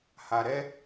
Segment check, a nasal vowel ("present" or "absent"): absent